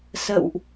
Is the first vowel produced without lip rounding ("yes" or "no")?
yes